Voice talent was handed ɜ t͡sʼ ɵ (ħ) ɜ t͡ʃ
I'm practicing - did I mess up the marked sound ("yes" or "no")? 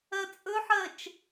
no